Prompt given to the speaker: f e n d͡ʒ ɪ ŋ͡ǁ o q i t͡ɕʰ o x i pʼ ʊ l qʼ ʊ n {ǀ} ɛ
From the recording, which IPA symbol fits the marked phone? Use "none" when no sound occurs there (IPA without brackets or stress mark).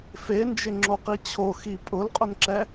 ǁ